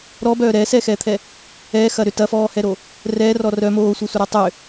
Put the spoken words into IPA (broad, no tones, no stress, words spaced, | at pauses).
ɾɔbœː ɾɛːsɛːxɛːt̪ʰɛ | ɛːxɐ ɾʏ tɐfɔːhɛɾo | rɛːrɔ rœ moːsʷœsʷɐɾɔ tˤʏ